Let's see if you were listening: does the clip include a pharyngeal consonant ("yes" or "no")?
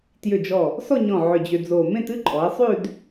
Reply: yes